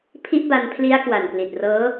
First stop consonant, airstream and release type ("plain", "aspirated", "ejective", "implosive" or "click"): aspirated